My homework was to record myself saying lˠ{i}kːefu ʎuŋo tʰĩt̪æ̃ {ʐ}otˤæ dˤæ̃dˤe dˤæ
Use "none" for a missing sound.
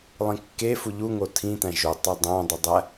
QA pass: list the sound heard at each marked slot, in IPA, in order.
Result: ĩ, ʒ

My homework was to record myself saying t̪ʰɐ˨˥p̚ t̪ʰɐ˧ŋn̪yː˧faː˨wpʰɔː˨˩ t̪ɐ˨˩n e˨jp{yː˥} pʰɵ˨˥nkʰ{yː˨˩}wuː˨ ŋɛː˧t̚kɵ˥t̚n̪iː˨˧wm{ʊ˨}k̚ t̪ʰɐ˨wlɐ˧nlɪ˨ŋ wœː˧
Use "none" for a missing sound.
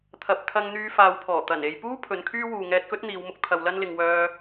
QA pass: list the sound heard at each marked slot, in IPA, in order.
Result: uː˥, yː˥, ʊ˧

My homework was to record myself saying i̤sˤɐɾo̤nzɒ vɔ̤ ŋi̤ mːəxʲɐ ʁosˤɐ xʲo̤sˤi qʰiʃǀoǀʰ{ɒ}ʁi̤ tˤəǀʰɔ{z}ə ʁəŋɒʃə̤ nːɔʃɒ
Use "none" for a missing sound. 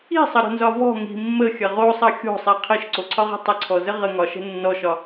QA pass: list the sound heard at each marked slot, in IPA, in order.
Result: ɒ, z

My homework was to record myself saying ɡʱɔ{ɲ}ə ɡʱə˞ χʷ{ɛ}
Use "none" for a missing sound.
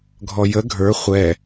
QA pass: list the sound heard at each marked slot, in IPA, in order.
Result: j, ɛ

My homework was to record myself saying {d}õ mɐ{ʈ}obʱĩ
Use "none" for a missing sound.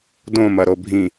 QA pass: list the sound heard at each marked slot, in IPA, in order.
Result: d, ɾ

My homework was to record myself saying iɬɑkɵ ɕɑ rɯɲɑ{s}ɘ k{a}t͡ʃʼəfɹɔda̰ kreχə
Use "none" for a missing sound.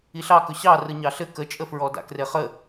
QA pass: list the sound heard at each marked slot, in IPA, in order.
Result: ɬ, ə

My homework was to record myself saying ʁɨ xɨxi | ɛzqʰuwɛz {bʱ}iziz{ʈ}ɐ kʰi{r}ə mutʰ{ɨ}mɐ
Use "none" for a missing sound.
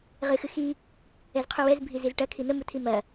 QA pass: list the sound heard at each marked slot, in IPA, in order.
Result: bʱ, ʈ, n̪, i

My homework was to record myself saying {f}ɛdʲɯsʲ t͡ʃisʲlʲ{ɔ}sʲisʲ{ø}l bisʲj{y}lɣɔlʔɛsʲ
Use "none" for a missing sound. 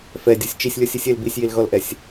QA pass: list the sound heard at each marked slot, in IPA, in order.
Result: f, ɔ, e, i

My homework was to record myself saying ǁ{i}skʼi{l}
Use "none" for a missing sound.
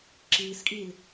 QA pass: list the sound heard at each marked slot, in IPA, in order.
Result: iː, l

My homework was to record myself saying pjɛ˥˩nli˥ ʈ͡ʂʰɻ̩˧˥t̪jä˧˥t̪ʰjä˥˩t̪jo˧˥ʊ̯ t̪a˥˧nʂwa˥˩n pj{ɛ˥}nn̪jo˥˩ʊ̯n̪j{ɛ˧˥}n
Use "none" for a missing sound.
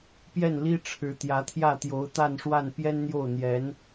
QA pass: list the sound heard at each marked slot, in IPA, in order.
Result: ɛ˥, ɛ˧˥

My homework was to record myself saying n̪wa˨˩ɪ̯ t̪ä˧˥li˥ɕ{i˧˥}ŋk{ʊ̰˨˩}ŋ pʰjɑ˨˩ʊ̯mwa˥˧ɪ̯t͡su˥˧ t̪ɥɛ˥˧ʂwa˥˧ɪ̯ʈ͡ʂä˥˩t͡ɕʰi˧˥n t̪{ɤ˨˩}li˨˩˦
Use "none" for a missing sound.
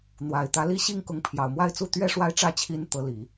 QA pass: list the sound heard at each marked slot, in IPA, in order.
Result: i˥, ʊ˧˥, ɤ˧˥

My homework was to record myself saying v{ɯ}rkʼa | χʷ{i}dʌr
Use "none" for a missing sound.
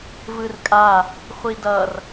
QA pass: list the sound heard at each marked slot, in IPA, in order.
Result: ɯ, i

